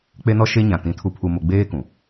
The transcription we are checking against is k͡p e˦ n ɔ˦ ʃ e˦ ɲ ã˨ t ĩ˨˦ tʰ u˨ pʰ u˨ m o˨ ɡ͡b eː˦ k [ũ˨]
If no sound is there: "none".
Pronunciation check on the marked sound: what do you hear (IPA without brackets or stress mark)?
ũ˨